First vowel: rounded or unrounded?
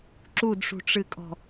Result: rounded